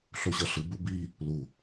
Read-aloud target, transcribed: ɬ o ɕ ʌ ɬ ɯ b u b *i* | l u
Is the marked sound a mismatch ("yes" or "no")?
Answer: no